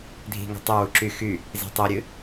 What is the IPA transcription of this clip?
dʱi̤ ŋo̤tˤʊ wuǁy xy | zi̤tˤiɾʲɨ

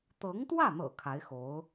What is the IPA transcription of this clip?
t̪ɤ˧˥ŋt̪wä˥˩n̪ɤ̰˨˩ kʰa˧˥ɪ̯xo˧˥ʊ̯

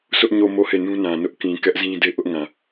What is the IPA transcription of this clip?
sʊ˦ʔɲo˦˨mo˦˨ he˦˨nũ˦nã˨nʊ˦ʔ kĩ˨kɛ˦ʔzĩ˦ de˦ʔʊ˦ʔŋã˨

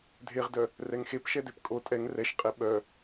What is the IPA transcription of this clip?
dʱeʁdœ | rɛŋxep ʃɛdepkʼo tʼɛŋ rɛʃqʼɛ ɓœ

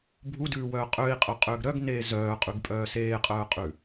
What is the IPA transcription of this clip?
bʱudʉːwœː qʼøi̯qʼœqʼøːɡ ɾœɡneː zœːqʼʉɡpʼœː seːqʼœːqʼʉ

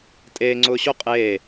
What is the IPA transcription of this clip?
tʼeːŋ͡ǀʊː ɕo qʼeː

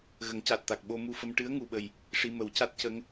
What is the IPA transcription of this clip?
ɣə˨˩˦ŋca˨˩t̚t̪a˨˩k̚ ɓo˧mu˧fə˧m ʈɨ˧˥ə̯ŋu˨˩ɓə˨˩j | ʂi˧mə˨˩˦wca˦˥t̚ cə˧˥ŋ

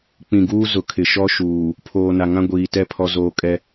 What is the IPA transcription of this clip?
k͡pĩ˨ɡuː˦ zʊ˨kʰɪ˨ ʃɔ˦ʃuː˨ | pʰoː˨na˨ ŋã˦ɡʷiː˨tɛ˦˨ pʰɔ˦zoː˦ kʼɛ˦

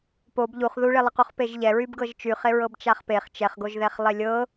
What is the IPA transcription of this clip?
pob ʎuχ ðuɭelˠəquχ peʒʎɛ ɹybɡɤʒt͡ʃyχe ɹɤbt͡ʃaχpeχ t͡ʃɛχɡoʒðɛχ lˠelʲɤ

